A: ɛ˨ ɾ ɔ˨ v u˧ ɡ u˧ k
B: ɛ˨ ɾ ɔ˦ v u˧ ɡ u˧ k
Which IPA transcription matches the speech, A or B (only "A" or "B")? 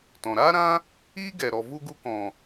A